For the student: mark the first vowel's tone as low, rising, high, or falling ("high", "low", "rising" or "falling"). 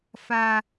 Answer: high